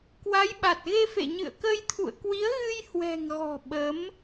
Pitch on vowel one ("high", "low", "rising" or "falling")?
rising